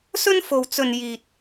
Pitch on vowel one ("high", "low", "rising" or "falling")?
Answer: high